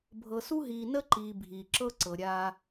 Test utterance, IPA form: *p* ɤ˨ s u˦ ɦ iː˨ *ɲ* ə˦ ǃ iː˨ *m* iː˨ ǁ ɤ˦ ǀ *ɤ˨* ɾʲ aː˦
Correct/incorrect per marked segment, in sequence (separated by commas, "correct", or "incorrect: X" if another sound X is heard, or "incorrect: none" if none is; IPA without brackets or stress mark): incorrect: bʱ, incorrect: n, incorrect: bʱ, correct